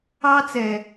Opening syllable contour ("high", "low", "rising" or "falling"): high